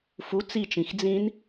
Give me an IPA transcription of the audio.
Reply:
f u t͡s i t͡ʃ ĩ x d͡z ĩ n

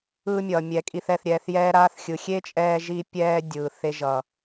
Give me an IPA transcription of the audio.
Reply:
ɯː˧ mʲ ʌː˨ mʲ ɛ˧ kʼ i˧ θ ɛ˧ θ ɾʲ ɛː˧ θ j ɛː˦ ɾ aː˦ θ xʲ ɯ˨ xʲ e˦ t͡ʃʼ ɛː˧ ʒ iː˧ pʲ ɛː˧ dʲ ɯː˨ θ e˧ ʒ ʌ˨

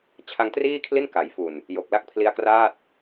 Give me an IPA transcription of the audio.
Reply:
t͡ɕʰ a˧ ŋ t r iː˥˩ kʰ l i˥˩ n k a˩˦ j f u˨˩ n | j o˨˩ k̚ l a˦˥ k̚ pʰ l i˦˥ a̯ k r aː˥˩ t̚

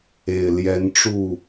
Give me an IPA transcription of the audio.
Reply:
e˨˩ ɪ̯ l j ɛ˨˦ n ʈ͡ʂ u˥˨

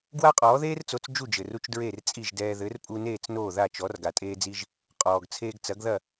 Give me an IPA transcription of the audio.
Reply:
ɡ w a˥ qʼ ɔː˩˥ ð eː˥ r t͡s o˩˥ t͡s d͡ʒ u˥˩ d͡ʒ ɘ˩ r u˧ t͡ʃ d ɹ e˥˩ r t͡sʼ i˥˩ ʒ d ɛː˧ ð ɘ˩˥ r pʼ u˧ n eː˥˩ t͡s n oː˥˩ ð a˥˩ t͡ʃ ɔ˩˥ r ɡ a˩ tʼ eː˧ d͡z i˧ ʒ | qʼ ɔː˩ ɡ t͡sʰ eː˧ ɡ t͡s ɐ˩˥ ɡ ð ɐ˥˩

